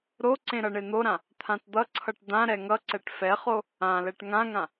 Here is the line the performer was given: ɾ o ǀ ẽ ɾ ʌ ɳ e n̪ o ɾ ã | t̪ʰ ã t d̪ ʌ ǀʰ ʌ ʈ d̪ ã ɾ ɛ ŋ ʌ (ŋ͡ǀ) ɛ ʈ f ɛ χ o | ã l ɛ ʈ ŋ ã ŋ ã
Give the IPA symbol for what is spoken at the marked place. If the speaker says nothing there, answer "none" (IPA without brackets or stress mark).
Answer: ǀ